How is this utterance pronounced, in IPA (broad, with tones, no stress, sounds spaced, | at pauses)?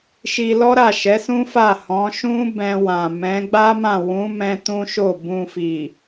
ʃ i˧ l ɔ˦ ɾ a˦˨ ʃ ɛ˨˦ s ũ˦ f a˦˨ h ɔ̃˨˦ ʃ ũ˦ b ɛ̃˧ w ã˨ m ɛ̃˨˦ ɡ͡b a˦ m ã˦˨ w ũ˨˦ m ɛ̃˧ t ũ˦ ʃ o˦˨ b ũ˧ f i˨